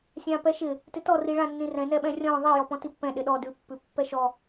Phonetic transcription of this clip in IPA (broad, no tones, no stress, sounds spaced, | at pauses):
sʲ ã p ɛ ʃ ɪ | t ɪ t ɔ r i ɭ ã nː ĩ r ɛ̃ n ɛ ɓ ɛ̃ rʲ ɔ̃ ðˤ i j ɔ p ɔ̃ t i pː ɛ̃ ɗ ɪ ɗ ɔ d ʉ pː ʉ pː ɛ ʃ ɔ